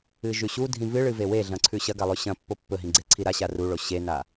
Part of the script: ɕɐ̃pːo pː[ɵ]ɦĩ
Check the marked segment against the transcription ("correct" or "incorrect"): correct